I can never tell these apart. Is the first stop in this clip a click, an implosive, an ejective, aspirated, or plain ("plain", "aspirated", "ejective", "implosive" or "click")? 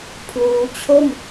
aspirated